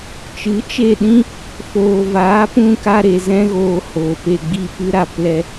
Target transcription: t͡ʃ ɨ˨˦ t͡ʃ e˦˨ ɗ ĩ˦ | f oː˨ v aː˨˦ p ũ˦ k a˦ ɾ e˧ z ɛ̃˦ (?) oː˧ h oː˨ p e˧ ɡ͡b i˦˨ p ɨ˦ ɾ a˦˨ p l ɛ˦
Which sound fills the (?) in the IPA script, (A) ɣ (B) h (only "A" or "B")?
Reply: A